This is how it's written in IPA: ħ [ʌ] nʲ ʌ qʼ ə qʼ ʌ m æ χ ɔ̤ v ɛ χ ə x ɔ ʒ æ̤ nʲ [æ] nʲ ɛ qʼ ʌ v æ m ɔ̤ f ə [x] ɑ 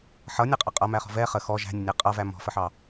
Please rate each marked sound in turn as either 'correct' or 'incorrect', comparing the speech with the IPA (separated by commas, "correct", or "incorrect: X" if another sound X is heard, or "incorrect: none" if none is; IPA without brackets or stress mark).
correct, incorrect: ə, incorrect: ħ